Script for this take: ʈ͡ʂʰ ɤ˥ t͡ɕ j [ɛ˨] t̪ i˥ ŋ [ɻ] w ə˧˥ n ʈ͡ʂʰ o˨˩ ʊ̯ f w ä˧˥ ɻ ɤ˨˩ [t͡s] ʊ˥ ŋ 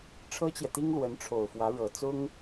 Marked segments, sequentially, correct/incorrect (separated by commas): correct, incorrect, correct